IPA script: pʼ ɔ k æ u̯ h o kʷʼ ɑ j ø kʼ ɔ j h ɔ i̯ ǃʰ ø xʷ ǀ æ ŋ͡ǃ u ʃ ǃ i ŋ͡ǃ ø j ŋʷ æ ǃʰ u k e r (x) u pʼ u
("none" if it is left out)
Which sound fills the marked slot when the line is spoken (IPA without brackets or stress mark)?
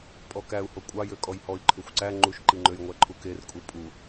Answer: kʼ